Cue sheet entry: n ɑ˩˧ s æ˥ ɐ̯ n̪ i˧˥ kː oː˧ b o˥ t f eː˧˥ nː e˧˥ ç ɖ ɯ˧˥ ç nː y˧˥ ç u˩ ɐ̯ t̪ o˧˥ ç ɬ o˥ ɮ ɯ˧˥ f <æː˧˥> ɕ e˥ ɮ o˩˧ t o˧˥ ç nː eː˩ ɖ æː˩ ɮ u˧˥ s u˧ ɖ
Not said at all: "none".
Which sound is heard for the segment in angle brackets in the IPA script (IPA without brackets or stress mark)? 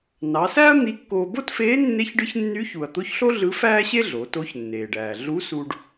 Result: æː˥